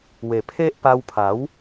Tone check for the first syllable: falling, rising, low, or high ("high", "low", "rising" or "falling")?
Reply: low